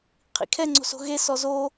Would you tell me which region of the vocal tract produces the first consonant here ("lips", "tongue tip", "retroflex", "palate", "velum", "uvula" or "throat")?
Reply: uvula